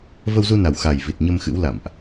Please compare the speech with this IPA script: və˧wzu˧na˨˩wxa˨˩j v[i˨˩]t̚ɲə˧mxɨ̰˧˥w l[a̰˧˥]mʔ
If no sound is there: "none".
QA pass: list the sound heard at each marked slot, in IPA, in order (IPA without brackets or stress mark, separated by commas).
i˨˩, a̰˧˨